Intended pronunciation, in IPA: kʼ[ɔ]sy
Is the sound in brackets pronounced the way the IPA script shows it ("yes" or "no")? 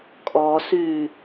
yes